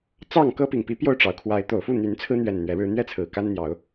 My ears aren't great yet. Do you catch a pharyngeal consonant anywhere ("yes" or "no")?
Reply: no